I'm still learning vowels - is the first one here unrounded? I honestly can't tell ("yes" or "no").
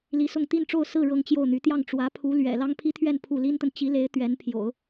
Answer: yes